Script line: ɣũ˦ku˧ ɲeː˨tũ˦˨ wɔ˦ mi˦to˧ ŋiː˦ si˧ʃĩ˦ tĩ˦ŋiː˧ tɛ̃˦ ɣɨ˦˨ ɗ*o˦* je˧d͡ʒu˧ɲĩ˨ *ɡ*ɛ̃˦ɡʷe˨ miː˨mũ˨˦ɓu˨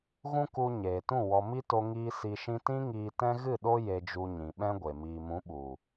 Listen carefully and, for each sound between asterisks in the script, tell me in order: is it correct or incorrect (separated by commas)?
correct, incorrect